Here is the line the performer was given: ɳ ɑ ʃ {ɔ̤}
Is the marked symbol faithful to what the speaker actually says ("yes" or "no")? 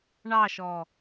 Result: no